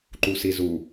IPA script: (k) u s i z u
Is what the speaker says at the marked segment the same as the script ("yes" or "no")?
no